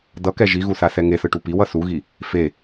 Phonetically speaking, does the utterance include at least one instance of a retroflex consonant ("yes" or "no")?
yes